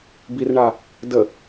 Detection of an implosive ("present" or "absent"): absent